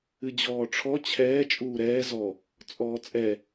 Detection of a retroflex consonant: present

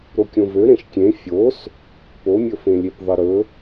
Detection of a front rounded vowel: present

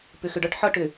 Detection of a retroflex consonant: present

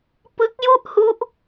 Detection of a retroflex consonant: absent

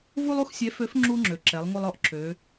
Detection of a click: present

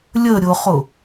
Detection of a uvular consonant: present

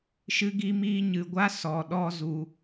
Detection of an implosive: present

